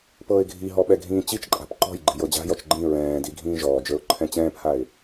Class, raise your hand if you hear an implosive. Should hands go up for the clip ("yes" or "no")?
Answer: yes